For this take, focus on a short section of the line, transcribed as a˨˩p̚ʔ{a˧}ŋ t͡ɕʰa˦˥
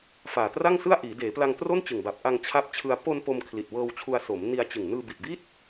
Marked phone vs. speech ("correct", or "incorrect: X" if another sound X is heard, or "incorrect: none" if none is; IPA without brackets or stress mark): correct